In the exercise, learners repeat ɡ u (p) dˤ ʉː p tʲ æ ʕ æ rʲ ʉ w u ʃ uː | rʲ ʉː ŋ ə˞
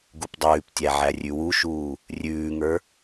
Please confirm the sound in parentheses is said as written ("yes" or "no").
yes